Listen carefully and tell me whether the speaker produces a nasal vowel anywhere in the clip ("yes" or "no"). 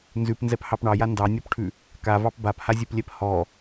no